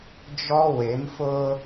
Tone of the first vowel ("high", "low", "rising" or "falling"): high